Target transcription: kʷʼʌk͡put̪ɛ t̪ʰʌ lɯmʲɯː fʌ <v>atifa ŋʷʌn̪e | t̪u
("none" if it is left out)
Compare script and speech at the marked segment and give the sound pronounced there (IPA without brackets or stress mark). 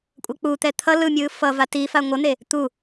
v